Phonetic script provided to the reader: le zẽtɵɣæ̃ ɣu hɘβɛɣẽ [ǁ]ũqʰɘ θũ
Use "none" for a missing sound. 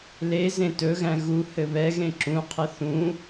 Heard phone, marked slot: ǁ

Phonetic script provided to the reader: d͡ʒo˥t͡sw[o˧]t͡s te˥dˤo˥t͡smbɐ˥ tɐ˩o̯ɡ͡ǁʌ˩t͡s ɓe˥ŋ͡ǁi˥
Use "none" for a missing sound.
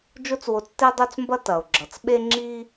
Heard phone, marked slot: o˧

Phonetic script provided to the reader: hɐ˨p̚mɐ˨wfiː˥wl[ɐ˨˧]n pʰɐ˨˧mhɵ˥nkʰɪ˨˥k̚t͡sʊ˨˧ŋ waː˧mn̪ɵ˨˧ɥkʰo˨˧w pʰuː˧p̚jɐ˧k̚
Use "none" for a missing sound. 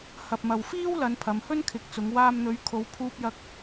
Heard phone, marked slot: ɐ˨˧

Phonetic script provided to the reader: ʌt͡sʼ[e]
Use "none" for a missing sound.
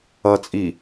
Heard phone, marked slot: i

